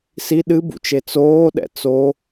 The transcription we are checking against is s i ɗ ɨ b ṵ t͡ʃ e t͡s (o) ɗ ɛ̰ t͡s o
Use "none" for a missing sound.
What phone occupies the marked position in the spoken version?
oː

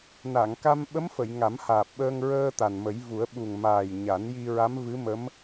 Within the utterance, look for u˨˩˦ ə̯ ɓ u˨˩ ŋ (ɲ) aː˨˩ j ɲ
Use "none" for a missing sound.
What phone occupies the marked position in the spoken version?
m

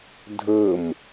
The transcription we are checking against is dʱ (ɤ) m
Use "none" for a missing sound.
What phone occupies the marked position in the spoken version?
ɤ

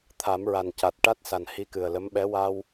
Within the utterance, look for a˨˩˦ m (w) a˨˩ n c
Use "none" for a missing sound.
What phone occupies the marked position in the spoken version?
ɹ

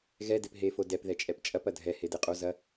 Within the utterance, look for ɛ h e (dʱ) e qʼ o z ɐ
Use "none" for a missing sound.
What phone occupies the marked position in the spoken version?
d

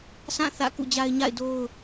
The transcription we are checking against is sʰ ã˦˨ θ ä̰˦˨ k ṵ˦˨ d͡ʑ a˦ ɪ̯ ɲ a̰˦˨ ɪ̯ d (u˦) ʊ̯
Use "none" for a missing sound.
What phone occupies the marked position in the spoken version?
o˦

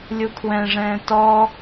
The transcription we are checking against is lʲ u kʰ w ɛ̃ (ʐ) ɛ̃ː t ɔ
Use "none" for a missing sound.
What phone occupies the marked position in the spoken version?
ʐ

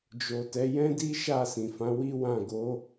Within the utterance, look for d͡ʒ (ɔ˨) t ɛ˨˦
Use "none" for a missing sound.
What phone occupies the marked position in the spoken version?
o˨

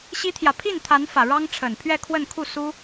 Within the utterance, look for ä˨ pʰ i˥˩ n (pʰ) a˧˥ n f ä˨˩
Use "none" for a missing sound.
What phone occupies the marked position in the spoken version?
t̪ʰ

